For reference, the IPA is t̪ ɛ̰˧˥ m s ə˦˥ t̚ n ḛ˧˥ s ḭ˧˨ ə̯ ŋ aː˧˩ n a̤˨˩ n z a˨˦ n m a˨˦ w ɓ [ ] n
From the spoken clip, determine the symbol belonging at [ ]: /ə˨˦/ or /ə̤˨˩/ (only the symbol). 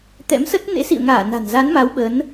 ə˨˦